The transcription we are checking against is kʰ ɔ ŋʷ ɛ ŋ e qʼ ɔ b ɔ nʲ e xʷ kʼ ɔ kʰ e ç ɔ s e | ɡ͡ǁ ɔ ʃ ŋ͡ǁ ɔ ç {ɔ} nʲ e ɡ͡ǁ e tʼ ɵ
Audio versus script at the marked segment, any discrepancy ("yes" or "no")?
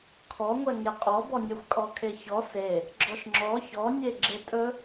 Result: no